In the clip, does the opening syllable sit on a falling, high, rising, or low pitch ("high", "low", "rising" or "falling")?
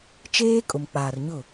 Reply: high